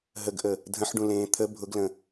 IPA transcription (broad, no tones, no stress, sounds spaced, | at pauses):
ɦ ə ɡ ʔ ə | dʱ ə̃ ħ ɖ ũ l ẽː t̪ʰ ə bʱ ʊ ɡ l ə̃